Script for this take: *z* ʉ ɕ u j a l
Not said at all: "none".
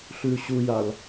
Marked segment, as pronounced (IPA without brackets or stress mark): ɬ